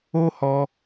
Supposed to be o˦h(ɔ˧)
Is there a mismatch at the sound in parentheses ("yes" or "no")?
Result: no